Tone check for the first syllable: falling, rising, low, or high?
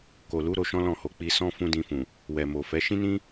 low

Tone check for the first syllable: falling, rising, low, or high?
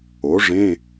rising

